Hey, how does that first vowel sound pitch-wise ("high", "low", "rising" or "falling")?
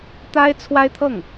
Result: high